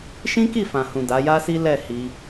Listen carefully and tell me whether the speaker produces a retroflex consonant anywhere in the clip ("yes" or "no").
no